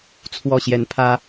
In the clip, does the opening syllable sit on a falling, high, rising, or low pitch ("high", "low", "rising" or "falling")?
falling